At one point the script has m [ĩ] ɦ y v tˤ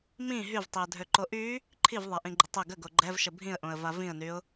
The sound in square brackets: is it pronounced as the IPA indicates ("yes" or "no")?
yes